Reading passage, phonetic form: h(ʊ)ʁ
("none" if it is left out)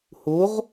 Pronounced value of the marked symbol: u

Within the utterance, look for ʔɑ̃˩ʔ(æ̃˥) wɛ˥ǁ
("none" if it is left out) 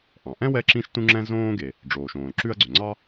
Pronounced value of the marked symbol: ɛ̃˥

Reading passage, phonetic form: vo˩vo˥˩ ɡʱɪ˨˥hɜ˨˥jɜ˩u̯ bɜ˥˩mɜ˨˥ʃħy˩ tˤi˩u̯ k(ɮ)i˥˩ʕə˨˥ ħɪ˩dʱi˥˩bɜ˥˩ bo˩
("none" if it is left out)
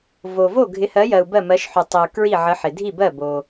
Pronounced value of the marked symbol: ɹ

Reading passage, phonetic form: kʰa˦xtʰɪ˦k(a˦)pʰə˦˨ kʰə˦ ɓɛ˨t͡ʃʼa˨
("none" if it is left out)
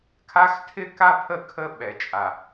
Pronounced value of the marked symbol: a˦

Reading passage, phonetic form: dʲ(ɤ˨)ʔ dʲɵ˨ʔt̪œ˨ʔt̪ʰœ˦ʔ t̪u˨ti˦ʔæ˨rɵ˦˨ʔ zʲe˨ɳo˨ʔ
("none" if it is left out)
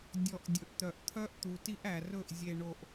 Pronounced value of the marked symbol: ɔ˨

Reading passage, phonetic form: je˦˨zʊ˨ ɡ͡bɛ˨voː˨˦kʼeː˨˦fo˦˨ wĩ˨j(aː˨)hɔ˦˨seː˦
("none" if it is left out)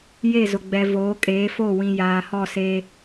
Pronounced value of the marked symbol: aː˨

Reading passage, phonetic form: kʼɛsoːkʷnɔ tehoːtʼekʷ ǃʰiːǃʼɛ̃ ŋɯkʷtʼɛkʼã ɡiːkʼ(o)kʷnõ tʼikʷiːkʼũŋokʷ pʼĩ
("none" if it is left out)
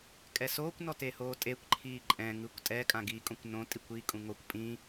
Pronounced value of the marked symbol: õ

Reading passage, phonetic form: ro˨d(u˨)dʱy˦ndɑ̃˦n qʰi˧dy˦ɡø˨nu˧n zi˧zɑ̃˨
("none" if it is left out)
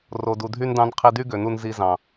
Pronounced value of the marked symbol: u˨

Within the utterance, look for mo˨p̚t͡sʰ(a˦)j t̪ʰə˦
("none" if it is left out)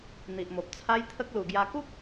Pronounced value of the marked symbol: a˦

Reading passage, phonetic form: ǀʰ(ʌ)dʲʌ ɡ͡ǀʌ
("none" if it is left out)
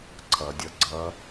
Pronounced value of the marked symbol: ʌ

